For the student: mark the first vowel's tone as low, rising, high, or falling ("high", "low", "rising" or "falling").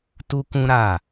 high